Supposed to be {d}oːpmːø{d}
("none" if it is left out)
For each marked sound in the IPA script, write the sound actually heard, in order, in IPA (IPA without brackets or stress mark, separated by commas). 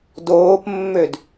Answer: d, d